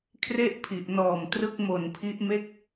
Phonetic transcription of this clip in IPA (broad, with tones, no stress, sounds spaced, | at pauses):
kʰ r e˥˩ ʔ pʰ i˨˩ ʔ n ɔː˨˩ m t r ɯ˦˥ k̚ m o˨˩ n pʰ i˦˥ ʔ m e˦˥ k̚